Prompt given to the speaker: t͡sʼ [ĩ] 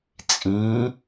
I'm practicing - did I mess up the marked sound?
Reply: no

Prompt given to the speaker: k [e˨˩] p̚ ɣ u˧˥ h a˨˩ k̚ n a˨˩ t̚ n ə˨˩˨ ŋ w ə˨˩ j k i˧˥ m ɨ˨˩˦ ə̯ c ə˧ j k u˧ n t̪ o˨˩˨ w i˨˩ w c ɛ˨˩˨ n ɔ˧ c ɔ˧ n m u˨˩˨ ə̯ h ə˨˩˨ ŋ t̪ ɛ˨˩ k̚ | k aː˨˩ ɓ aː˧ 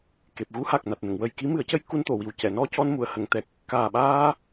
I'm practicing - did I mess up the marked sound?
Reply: no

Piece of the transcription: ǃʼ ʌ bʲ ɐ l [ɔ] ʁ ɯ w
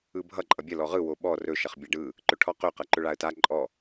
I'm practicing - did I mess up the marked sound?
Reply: no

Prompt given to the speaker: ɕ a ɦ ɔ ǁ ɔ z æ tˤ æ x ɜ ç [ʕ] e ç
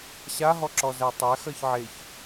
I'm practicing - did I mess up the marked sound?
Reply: no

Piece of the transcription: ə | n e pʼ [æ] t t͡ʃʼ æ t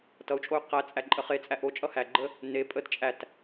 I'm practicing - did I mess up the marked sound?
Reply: yes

